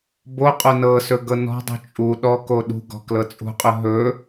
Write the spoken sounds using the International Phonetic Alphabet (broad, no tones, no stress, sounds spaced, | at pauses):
b o qʼ o n ɤ s ɵ ɡ ɤ n ɔ̤ dˤ ṳ t͡ʃʼ u ɗ ɔ k o ɗ ṳ ɡ ɔ̤ k l ɤ t͡sʼ ṳ qʼ ɵ ɦ ɵ